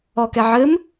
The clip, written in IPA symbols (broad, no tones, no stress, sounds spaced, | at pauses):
ɔ k ɛ ʕ ɘ m